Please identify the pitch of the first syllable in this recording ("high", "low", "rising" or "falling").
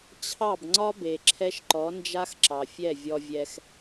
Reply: falling